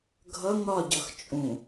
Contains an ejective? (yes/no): yes